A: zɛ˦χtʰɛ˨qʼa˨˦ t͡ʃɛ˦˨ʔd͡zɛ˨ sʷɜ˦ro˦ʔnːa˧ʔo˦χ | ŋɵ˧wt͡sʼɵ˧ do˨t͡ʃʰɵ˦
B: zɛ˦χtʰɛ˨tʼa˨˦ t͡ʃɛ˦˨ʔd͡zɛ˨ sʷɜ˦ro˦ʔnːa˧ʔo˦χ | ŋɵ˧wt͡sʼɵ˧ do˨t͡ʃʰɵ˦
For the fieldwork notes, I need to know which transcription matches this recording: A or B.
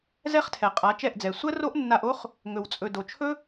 A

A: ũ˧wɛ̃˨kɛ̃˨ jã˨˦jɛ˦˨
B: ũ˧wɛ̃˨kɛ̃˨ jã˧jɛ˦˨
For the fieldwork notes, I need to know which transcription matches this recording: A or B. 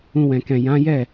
A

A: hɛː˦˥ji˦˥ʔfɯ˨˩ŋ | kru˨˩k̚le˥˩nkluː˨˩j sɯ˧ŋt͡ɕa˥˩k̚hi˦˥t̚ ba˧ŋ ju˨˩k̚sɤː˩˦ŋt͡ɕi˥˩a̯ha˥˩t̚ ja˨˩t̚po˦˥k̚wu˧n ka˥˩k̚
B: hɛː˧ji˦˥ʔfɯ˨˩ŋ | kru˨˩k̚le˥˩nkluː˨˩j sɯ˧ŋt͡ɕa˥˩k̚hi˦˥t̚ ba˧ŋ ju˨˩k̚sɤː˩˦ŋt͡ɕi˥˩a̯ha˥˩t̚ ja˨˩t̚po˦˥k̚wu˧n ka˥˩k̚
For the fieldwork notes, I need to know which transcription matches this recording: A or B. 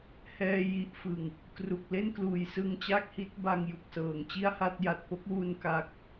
B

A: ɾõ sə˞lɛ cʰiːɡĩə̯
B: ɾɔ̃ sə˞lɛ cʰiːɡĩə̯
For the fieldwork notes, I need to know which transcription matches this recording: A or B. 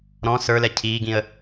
B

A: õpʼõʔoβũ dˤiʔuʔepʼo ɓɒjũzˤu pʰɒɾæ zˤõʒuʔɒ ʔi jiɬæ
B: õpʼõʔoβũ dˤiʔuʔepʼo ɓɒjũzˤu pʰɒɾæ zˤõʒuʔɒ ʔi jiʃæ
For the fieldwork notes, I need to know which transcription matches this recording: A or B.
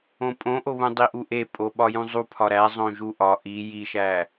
B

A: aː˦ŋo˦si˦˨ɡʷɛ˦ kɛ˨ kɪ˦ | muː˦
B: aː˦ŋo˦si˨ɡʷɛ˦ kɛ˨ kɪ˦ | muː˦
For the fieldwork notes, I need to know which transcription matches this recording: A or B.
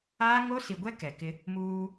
B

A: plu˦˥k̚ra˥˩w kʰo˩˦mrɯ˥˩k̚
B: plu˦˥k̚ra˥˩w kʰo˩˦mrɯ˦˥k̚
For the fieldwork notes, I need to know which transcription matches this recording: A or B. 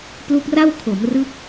B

